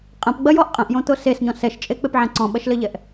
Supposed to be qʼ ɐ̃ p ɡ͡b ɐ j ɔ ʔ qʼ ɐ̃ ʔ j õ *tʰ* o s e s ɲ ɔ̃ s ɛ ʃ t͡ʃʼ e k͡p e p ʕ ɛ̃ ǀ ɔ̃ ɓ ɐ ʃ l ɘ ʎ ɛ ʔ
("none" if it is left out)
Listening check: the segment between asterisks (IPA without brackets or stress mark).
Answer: t̪